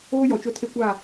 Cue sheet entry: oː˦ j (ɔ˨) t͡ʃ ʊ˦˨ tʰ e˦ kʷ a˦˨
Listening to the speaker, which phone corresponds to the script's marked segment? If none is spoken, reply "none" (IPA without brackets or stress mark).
ɔ˨